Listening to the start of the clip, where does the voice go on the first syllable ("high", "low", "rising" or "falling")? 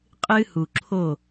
high